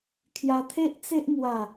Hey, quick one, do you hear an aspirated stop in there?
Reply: yes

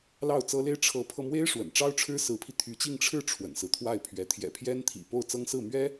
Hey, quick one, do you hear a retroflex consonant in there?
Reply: yes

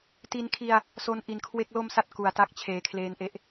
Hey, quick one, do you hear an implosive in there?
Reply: no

